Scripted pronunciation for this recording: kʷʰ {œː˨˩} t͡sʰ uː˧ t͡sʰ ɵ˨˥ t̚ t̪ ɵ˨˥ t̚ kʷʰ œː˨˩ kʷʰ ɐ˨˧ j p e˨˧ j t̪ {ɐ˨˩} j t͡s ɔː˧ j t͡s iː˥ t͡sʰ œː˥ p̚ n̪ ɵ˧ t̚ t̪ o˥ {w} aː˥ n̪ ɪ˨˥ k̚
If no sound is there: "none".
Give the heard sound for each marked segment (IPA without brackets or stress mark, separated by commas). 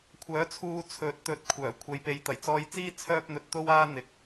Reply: œː˨˥, ɐ˨˩, w